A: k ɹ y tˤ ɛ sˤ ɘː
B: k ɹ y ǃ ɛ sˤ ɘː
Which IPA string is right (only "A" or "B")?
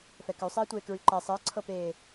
B